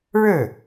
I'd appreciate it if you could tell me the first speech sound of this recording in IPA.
ɻ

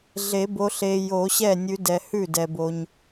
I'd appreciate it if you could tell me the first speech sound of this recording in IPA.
ɮ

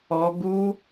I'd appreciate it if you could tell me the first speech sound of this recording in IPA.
ɔ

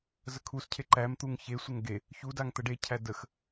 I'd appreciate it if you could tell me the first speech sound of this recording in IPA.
z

